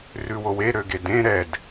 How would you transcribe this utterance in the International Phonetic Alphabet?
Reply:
rʉwowe ɾøɡedẽ ɾɛd

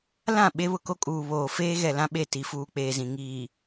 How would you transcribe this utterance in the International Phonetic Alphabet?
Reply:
lã˦˨ ɓe˦βʊ˨ko˦kʼuː˨ βoː˨feː˦ɣɛ˨ lã˦ɓe˦˨ ti˨fuː˨ k͡peː˨zĩ˨ ŋiː˨

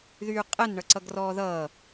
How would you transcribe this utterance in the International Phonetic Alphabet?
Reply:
ðyːqʼɛn ɳʌǀʌɡrɔːðʌː

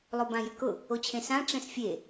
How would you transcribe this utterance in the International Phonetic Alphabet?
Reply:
lˠobãjʏkʊ | ot͡ɕʰẽsã ʈ͡ʂɛ̃sfʲe

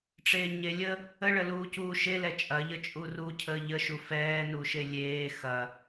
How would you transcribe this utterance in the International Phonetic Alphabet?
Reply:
ʈ͡ʂeːɲelʲə | əɭəluː cuːʃe lɛt͡ʃʼɐʎə t͡ʃʼuru cʰəːʎəʃu fɛːnuʃe lʲeː xɐ

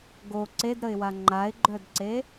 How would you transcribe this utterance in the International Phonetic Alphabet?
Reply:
ɡo ǀedɾəɪ̯wa ŋ͡ǃaɪ̯ɡ͡ǃœdǀe

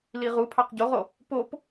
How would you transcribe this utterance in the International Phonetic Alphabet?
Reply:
liʁupʰɑq ɟoʁo | pop

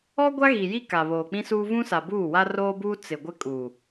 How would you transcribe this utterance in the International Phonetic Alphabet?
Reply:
ɔ˦ ɡʷa˦ɣi˨ji˦ ka˨βoː˨k͡pĩ˦suː˦ vũ˦sa˨buː˦˨wa˦ roː˦buː˦ t͡sɪ˨ɡʷɪ˦kʼu˨

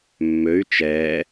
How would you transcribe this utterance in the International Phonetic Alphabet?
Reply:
mːøy̯ t͡ʃɛː

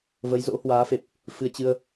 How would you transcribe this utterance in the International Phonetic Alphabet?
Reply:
və˨˦jzo̰˧˥hwaː˨˦fe˨˩p̚ | fɨ˧ə̯t͡ɕɨ˧ə̯

